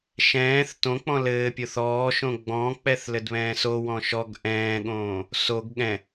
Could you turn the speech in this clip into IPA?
ʃ ɛ̃ː θ t õ k͡p ɔ̃ l ɘː pʲ o θ ɔː ʃ õ ɡ͡b ɔ̃ k͡p ɛ θ l ɘ d β ɛ̃ː s o w ɔ̃ ʃ ɔ ɡ ʔ ɛ̃ː ɠ õː | s o ɡ ɠ ɛ̃

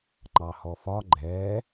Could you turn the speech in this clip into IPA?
ŋ͡ǃ ɑ h ɔ f ɒ ɡ͡ǃ ɛː

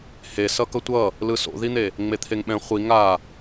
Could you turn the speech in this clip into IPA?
h e s ʌ k ʌ tʷ ʌ | l ɯ s o̰ ð i n̪ e | ŋ͡m e t̪ʰ e ŋ ɓ ɛ̃ χʷ i ŋ a

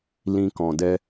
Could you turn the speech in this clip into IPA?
l ĩ˦ k ɔ̃˧ d ɛ˦

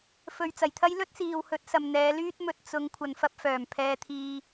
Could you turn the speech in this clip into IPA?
f ɵ˨ ɥ t͡s ɐ˨˩ j t̪ʰ ɐ˥ j l ɵ˥ t̚ s iː˨ w h ɵ˨˥ t̚ s ɐ˨ m n̪ ɛː˨˧ l yː˥ t̚ m ɵ˧ t̚ t͡s ʊ˨˧ ŋ kʷʰ ɐ˨ n f ɐ˧ p̚ f œː˨˩ m pʰ ɛː˧ t̪ʰ iː˧

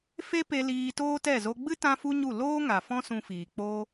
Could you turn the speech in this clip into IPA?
f e˦ p e˧ l iː˧ t oː˦ t ɛ˦˨ z o˧ ɡ͡b ɨ˦ t ã˦ f u˦ ɲ u˦˨ l oː˦ ŋ a˨ f ɔ̃˦ s ũ˧ f iː˨ k͡p oː˦

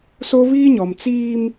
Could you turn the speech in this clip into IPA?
s o˦ β iː˦ ɲ ɔ˨ m t͡s iː˦ m

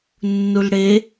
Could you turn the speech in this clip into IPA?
nː u l ɽ e

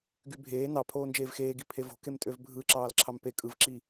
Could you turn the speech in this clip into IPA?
ɡ y bʱ eː n ɑ pʰ oː n d͡ʒ eː v x eː ɡ i pʰ e v o̤ k e m tʼ ø v bʱ ɯ ǁ ɑː l ǁʰ ɑ m p e kʼ ɯ v ǁ i

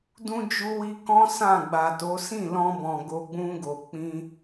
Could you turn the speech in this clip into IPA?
d ũ˧ d͡ʒ u˧ w i˧ k ɔ̃˦ s ã˦˨ ɡ͡b a˨ t o˨˦ s ĩ˦˨ l ɔ̃˧ b ɔ̃˨ ɡ o˧ ɡ͡b ũ˧ ɡ o˨ k͡p ĩ˧

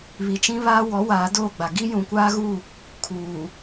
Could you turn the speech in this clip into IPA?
β i˨ t͡ʃ ĩ˦ β aː˦ w ɔ˨˦ w aː˨˦ d oː˦˨ ɡ͡b a˨ ɡ i˦ j ũ˨ kʷ aː˦ ɣ u˦˨ | kʰ uː˨

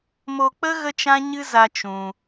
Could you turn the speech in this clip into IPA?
m o˧ k͡p ə˦ ɣ ə˦ t͡ʃ ã˦ ɲ ɨ˦ z a˦ t͡ʃ ũ˧

